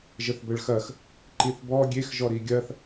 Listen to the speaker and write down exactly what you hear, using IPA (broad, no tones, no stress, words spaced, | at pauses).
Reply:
ʒəθbəɭxɐx | ǃiθbɔ ɡʲex ʒɔɾiɡʲɐθ